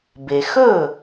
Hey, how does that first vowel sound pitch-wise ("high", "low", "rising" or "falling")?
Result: low